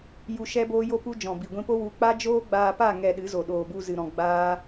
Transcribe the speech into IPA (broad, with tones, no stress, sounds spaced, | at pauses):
j u˧ ʃ ɛ˦ b oː˦ j o˦ p u˦ d͡ʒ ɔ̃˨ b i˨ ɡʷ ĩ˧ p o˦ w u˨˦ k͡p a˦ d͡ʒ oː˦ ɡ͡b aː˧ p a˦˨ ŋ ɛ˧ ɗ ɨ˨˦ z o˨ ɗ oː˨ b u˧ z ɨ˨ ɾ ɔ̃˨ ɡ͡b aː˦